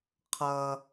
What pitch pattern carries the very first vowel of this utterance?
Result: high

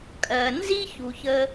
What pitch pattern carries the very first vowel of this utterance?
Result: low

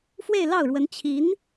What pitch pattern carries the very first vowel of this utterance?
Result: falling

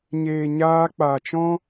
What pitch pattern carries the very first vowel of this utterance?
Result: low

